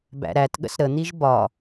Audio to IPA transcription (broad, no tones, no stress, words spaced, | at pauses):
bæ̰ɾætɠə̰s ɾən̪iʒ bɒ